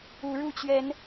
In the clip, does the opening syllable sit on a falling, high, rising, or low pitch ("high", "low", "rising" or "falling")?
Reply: rising